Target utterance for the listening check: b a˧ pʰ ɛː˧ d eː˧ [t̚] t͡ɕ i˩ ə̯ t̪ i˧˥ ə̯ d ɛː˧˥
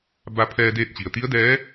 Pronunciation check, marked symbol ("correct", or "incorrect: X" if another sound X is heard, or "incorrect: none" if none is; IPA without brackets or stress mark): correct